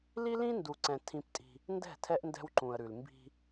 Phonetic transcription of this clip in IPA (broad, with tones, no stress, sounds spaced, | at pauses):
l i˦ l ĩ˦ n d u˨ ǀ ɛ̃˨ tʰ ĩ˦ p tʼ i̤˦ | n d ɛ̤˦˨ tʰ ɛ˦ ʔ n d ɛ̤˦ w ǃ ũ˨ ə̯ ɾ ʉ˨ l m b i̤˦